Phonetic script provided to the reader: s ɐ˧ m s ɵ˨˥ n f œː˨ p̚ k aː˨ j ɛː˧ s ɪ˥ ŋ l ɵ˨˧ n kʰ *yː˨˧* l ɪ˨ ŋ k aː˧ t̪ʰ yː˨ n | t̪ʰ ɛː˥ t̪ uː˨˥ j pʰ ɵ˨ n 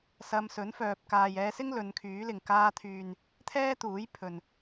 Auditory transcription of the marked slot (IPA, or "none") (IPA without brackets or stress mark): yː˨˥